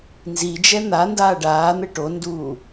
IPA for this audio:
nzid͡ʒɛ n̪andaː ɖaːn̪ɛ ʈonduː

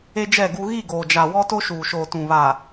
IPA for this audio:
e˦d͡ʒɛ˦˨ɡu˦ ɣi˦˨ɡoː˨d͡ʒa˨ wɔ˦to˦ʃuː˨ʃoː˨ tũ˨βa˨

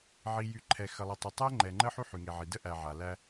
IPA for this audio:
ʕi˨jy˨ ǃʰɛ˨xə˨lˠə˨ tˤə˨tˤɛ˦ ŋ͡ǃɛ˨ŋ͡ǃə˦ ħy˦ħy˨ŋe˨ʕi˨ də˦ʔæ˨ʕa˨ læ˦

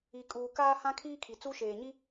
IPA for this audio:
i˨kʼuː˨ kaː˦hã˦ kʰiː˦kʰi˨ t͡su˦ʃeː˨ɲi˦

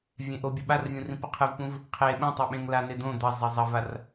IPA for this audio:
vʲẽʔobʲɐ ɓarvʲũ rĩpɐqʰɨvpũv | qʰe ɓũtˤe ɓẽŋlane d̪õ d̪ɐ zˤezˤɐvar

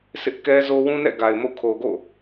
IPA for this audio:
sɪ˦ʔkɛ˦zo˦ wũ˦nɛ̰˦˨ɡa˨ɪ̯ mo̰˦˨ kʰo˨ɡo̰˦˨

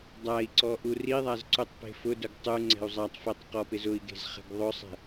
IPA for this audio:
dˤai̯ǀɔ ʔuriðˤaz ǀutˤpe̤fʊdʊɡ tˤu ŋ͡ǀɛ̤u̯zˤatˤfetˤ qɔpɪzʊi̯ɡe̤z χɛ̤ɡðˤʊsˤɛ̤

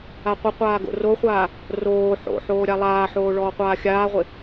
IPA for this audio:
aqʷɪqʷaː ɡo̰roχʷaː | roː ħo̰ħoː ɾʲalˠaːħoː ɭɔːqʷaːxʲaːʁʷɪ

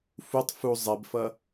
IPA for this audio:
futˤ fu zˤɛbfʌ

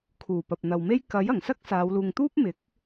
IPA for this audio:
kʰuː˨˩ pɐ˨p̚n̪ɐ˨wme˥j kɐ˨˥j ɐ˨˩ŋsɐ˥k̚ saː˨˧wluː˨ŋ t̪uː˥p̚mɪ˨˥k̚

